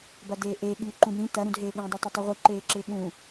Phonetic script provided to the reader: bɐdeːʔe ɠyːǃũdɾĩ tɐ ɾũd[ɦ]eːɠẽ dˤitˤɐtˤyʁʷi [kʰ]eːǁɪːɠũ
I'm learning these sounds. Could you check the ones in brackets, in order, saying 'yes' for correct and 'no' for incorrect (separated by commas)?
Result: yes, no